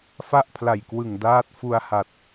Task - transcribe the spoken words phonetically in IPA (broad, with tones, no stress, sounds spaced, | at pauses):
f a˥˩ ʔ pʰ l a˨˩ j k w ɯ˨˩ ŋ d aː˦˥ t̚ f u˧ a̯ h a˨˩ t̚